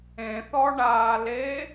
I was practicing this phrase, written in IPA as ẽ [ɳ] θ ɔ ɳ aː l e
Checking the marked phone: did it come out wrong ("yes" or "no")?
yes